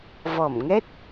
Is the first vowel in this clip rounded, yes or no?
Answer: yes